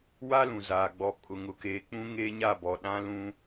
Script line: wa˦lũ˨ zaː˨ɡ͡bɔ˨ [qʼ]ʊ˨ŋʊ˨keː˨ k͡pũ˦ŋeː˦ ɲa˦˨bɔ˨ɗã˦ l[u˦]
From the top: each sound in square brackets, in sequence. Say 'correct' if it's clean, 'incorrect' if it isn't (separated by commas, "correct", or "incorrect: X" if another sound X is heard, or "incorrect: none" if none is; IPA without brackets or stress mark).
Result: incorrect: kʼ, incorrect: ũ˦